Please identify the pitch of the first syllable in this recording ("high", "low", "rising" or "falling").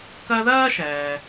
high